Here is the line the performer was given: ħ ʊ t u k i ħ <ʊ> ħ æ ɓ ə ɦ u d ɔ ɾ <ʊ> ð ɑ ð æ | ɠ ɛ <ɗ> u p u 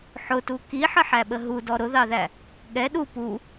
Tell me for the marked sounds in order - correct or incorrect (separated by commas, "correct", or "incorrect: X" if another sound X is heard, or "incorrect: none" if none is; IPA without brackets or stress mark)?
incorrect: ə, correct, correct